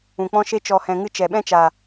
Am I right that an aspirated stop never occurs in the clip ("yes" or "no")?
yes